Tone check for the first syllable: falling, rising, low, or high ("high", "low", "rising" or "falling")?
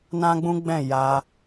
high